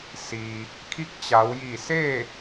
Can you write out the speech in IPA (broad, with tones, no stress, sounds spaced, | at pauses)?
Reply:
s iː˩ | kʰ i˧˥ k̚ t͡ɕ a˩˧ w j i˧˩ s eː˥˨